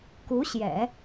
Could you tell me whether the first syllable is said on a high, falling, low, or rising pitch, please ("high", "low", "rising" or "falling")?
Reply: rising